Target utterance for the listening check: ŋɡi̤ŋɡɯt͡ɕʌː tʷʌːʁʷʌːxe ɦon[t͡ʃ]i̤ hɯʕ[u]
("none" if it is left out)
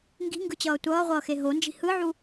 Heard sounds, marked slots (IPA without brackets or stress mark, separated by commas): d͡ʒ, u